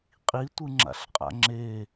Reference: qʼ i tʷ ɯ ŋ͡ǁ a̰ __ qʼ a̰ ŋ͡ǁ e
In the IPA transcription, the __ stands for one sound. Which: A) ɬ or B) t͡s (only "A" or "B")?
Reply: A